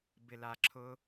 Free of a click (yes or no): no